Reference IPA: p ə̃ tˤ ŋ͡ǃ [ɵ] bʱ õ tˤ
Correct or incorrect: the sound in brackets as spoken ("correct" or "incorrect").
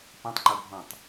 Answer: correct